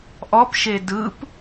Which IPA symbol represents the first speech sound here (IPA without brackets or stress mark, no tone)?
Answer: ʔ